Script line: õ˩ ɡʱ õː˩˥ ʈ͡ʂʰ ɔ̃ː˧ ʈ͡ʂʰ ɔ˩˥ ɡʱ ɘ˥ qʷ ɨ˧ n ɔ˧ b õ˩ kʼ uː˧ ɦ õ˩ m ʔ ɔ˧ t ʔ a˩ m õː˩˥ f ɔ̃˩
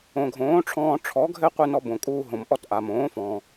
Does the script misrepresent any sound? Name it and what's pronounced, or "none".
none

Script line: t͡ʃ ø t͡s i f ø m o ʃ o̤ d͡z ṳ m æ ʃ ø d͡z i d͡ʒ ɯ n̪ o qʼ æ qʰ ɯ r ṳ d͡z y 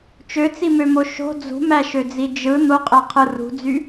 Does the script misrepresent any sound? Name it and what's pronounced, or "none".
f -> m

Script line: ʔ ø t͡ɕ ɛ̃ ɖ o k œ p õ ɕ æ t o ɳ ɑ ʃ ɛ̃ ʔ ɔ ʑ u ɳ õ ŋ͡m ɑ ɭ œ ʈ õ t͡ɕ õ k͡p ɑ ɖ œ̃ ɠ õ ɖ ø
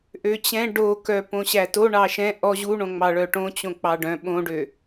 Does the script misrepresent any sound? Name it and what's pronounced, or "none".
ɠ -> ɓ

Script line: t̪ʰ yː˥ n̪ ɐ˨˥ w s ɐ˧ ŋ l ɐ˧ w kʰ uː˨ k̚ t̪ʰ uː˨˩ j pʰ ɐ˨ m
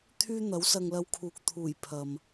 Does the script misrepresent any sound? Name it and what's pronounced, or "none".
none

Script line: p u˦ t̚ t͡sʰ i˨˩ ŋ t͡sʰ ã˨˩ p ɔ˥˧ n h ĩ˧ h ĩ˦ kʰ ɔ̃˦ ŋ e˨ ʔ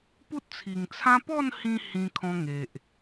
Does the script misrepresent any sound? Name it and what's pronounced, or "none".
ã˨˩ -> ã˦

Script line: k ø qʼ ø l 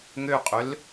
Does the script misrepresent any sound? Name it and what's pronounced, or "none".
k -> ŋ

